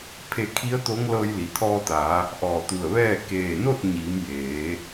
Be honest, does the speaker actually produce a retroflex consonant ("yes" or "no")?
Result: no